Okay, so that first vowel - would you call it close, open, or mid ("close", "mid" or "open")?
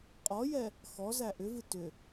mid